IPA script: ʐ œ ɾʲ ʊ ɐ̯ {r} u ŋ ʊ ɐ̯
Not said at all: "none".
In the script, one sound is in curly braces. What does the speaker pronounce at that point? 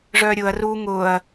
r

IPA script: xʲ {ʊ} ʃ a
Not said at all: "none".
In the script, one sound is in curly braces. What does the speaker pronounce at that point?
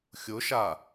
ʊ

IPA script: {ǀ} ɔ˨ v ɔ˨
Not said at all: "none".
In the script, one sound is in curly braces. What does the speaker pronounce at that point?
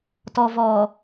t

